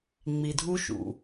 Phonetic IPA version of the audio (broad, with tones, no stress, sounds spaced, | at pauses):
ŋ͡m i˨ dʱ u˦ ʃ ṵ˨